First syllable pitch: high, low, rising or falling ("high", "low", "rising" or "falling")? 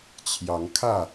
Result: rising